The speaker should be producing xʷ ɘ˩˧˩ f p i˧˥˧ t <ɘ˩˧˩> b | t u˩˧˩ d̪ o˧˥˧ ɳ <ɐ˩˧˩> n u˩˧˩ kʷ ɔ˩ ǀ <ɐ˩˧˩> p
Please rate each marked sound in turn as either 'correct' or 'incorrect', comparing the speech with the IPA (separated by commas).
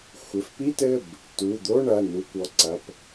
correct, correct, correct